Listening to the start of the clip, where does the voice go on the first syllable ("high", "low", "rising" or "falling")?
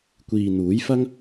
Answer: low